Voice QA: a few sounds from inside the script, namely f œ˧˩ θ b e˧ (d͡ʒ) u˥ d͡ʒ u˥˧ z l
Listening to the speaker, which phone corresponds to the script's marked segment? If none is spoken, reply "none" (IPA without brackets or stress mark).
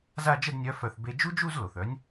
d͡ʒ